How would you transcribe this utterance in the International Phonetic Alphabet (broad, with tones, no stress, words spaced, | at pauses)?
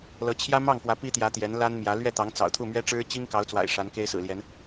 lɤ˧˥t͡ɕʰjä˥ mɑ˥˩ŋkwä˧˥ pi˥t̪jä˧˥ t̪jɛ˧˥nla˥n mjä˧˥ lɥɛ˥˩t̪ɑ˧˥ŋt͡sɑ̰˨˩ʊ̯ t̪ʰu˥˩mɥɛ˥ʈ͡ʂɻ̩˥ t͡ɕi˥ŋkɑ˧˥ʊ̯t͡swa̰˨˩ɪ̯ ʂa˧˥nke˥ɪ̯sɹ̩˨˩ljɛ˧˥n